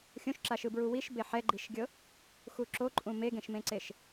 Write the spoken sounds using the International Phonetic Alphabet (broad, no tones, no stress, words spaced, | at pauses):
xʲõʃǁa ʃɯbɹuwiʃ beħɛɡ͡ǃiʃɡʲɤ | xuǁoǃʼũ meɡẽʃmẽǀeʃ